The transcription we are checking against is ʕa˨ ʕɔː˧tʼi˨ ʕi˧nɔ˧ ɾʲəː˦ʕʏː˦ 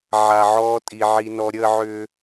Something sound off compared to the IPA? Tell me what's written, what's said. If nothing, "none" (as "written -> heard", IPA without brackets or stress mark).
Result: none